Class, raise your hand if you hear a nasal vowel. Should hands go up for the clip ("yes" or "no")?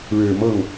no